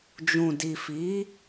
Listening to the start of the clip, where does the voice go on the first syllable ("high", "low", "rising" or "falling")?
low